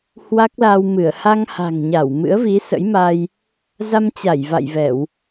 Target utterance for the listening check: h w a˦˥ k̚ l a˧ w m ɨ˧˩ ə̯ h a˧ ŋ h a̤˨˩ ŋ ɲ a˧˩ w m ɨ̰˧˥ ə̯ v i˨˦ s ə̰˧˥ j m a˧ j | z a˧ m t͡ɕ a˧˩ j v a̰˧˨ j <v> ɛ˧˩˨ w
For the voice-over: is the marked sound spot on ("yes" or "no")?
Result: yes